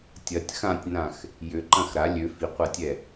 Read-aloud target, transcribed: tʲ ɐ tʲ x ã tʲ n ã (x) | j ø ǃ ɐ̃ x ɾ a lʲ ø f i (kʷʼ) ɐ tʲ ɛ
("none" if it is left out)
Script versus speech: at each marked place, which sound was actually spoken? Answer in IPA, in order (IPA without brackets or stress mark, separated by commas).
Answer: x, qʷ